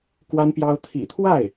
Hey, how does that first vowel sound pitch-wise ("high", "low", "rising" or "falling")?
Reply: high